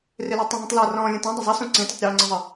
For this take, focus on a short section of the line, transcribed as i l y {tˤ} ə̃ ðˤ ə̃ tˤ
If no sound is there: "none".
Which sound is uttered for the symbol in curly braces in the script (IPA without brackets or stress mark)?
tˤ